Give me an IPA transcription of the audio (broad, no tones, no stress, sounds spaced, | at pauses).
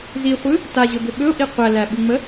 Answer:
z i χʷ ɯ | t a ʑ ɵ b ʏ ɓ ɵ ʊ̯ ʔ i qʷ æ l æ ɓ u ŋ͡m ə